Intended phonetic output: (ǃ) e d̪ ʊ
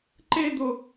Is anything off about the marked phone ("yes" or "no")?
no